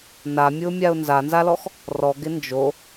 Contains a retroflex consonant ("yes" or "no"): no